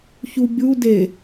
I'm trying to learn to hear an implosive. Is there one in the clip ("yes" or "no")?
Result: no